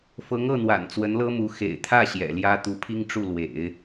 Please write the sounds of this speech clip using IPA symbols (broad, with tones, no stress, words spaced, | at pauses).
fɤ˧˥ŋɤ˥˩n̪wa̰˨˩n t͡swə˧˥nlɤ˥mu˧˥ xḛ˨˩ɪ̯t̪ʰä˥˩ ɕjɛ̰˨˩ljä˥ t̪u˧˥pʰi˥ŋʈ͡ʂu˥˩lwḛ˨˩˦ɪ̯